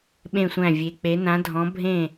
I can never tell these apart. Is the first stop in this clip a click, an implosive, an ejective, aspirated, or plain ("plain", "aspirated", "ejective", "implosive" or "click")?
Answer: implosive